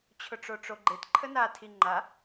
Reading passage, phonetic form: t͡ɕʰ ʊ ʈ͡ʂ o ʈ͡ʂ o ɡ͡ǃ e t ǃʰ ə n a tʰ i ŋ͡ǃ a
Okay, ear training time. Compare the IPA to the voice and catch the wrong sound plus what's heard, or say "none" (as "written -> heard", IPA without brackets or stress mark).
none